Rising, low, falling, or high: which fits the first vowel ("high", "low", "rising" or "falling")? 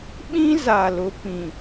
high